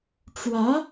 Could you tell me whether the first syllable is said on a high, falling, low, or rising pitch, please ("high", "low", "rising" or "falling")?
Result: rising